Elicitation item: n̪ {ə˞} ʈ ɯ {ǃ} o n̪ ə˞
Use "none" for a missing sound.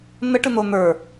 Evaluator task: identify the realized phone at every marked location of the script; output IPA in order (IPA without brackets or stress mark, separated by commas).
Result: ə, n̪